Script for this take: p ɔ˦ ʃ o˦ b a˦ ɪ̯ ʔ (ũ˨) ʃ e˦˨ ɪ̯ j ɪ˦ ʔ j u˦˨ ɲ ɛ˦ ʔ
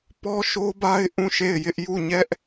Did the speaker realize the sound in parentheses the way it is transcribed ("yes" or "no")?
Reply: no